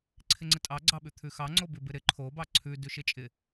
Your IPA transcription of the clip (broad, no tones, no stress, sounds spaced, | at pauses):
ǀʰ ɪ ŋ͡ǀ ɪ tʼ ɑ ɡ͡ǀ ɑ ɓ ʉ t̪ʰ ʉ x ɑ ŋ͡ǀ o b ʉ b ɪ ɾ ɪ ǃʰ o b ɑ ǀʰ ʉ d ʉ ʃ ɪ t͡ʃʼ ɪ